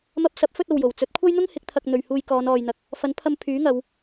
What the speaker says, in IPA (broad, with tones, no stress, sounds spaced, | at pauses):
m ɐ˧ p̚ s ɐ˨˥ p̚ f ɵ˥ t̚ o˨ w j o˨˩ w t͡s ɵ˨˥ t̚ kʷʰ ɐ˥ j n̪ ʊ˥ ŋ h ɪ˨˥ k̚ t̪ʰ ɐ˧ k̚ n̪ ɵ˨ ɥ h uː˧ j k ɔː˨˧ n ɔː˨ j n̪ ɐ˨ k̚ | f ɐ˨˥ n pʰ ɐ˧ m pʰ yː˨˥ ŋ ɐ˨˧ w